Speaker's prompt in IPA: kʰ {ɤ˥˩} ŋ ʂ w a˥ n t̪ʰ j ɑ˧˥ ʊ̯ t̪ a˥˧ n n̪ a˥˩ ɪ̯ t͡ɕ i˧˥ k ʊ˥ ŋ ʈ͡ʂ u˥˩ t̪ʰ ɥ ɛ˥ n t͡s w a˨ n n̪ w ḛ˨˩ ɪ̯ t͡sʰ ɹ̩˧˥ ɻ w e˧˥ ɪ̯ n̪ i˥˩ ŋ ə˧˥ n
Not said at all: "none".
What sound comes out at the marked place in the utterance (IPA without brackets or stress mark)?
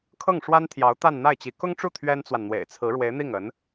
ɤ˥˩